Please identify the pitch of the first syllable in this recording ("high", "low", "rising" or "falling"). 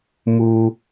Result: low